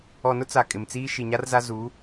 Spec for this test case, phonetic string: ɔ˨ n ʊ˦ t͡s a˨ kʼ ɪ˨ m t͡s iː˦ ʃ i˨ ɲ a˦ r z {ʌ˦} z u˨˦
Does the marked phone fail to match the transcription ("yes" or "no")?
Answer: yes